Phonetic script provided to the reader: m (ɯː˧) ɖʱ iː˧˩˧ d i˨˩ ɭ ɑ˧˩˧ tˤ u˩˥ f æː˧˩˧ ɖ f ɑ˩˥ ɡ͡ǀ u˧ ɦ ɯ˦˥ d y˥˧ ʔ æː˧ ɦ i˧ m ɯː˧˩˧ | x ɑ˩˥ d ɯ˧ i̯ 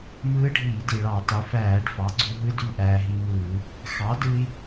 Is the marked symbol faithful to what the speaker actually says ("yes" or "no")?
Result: no